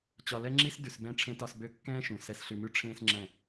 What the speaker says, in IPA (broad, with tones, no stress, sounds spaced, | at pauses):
t͡ɕ ɒ˧ l ɛ˦ ŋ͡ǁ i˦ s d ʉ˧ s b ɛ̃˦ ʈ͡ʂʰ ẽ˦ t ɒ˧ s b ø˧ kː ɛ̃ː˦ ʃ ũ˨ s ɛ˧ s ɬ ʉ˧ m ʉ˦ ʈ͡ʂʰ ẽː˧ s ŋ͡ǁ ɛ̃˦˨